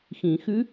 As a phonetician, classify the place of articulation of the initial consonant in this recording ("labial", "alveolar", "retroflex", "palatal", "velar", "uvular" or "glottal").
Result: velar